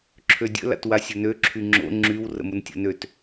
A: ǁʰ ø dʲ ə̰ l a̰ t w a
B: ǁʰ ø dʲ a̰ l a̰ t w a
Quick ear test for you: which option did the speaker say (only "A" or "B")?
A